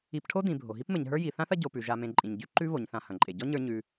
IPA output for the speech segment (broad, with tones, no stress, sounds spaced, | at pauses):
i˨ p ʈʰ o˥ d ĩ˩ bʱ o˩ ɦ i˦ p m ɘ˨ ɲ ɦ ə˞˦ j i˨ θ ã˥ θ ɐ˦ ɟ o˨ p ʉ˩ ʒ a˨ m ẽ˨ ǃʼ ĩ˩ ɲ ɟ ʉ˦ ǃ ʉ˦ β o˩ ɲ θ ã˨ h ɐ̃˩ ǃʼ e˩ ɟ ɔ˥ ɲ ə˞˥ ɲ ʉ˦